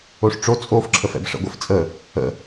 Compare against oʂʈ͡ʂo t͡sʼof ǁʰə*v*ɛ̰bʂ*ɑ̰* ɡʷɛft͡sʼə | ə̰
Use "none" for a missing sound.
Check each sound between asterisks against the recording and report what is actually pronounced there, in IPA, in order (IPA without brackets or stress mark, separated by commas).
f, ə̰